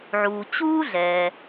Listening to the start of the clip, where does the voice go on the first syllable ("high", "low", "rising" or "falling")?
low